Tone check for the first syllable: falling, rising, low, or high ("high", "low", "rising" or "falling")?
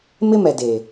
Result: high